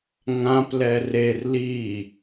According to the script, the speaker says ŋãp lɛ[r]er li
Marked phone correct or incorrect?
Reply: correct